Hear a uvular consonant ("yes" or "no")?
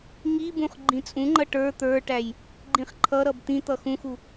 yes